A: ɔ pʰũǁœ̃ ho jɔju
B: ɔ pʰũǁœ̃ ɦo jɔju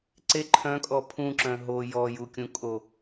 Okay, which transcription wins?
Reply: B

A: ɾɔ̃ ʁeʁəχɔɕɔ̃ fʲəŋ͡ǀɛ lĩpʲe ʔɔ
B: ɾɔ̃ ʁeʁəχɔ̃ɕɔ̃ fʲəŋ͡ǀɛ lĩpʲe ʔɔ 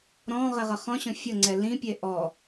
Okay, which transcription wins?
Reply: B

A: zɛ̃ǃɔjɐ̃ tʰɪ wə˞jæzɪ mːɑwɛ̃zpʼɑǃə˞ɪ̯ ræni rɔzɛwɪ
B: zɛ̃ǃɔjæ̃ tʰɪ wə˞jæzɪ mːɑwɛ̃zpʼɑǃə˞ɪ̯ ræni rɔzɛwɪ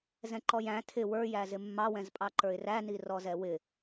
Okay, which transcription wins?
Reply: B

